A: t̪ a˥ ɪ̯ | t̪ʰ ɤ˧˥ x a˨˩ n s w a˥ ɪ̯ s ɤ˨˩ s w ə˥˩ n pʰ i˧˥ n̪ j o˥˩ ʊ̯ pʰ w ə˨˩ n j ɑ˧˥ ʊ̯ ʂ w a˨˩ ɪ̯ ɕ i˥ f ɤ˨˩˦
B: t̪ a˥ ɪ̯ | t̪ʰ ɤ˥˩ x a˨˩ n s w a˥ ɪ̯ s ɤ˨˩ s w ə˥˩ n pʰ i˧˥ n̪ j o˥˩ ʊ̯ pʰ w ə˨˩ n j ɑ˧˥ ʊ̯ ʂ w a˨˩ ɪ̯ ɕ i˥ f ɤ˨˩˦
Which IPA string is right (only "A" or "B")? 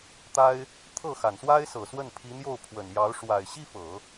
B